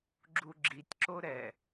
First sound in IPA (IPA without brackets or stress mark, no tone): ɡ͡ǁ